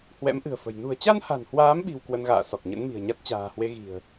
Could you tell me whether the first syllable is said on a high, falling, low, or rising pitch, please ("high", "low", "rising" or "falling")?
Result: rising